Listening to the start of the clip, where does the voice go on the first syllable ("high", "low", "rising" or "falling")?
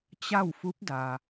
falling